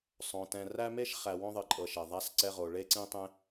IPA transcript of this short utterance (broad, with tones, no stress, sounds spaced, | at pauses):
sˤ õ˩ t ɛ̃˨ r æ˥ m e˥ ʃ χ æ˨ w õ˥ ðˤ ɨ˨ ǃʼ ɤ˨ ʃ e˩ ðˤ a˦ s ǀ ɛ˦ ʁ o˨ ɭ e˥ ǀ ĩ˥ tˤ ẽ˥